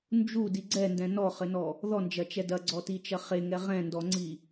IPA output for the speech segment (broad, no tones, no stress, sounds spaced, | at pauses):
n d͡ʒ u d i ɡ͡ǀ ɛ n d ɛ̃ n ɔ χ ɘ n ɔ | ð ɔ n d͡ʒ ɐ t͡ʃ ɛ d ɐ ɡ͡ǀ ɔ t i t͡ʃ ɐ χ e ŋ ɛ ʁ ɛ̃ n d ɔ ŋ͡ǀ i